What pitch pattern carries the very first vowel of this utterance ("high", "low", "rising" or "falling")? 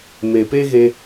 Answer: low